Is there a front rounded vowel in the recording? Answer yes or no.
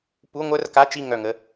yes